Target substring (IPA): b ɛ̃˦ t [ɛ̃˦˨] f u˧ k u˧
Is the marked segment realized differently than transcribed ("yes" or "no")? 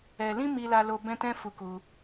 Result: yes